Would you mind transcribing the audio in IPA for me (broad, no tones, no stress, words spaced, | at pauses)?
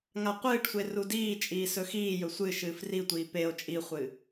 ŋaqʷɨːʈsʷe rudiːt͡ʃʼiː sɵxiːjɵ sʷɨ ʃɨːfritʷiː peo̯ t͡ʃʼiχʷɨ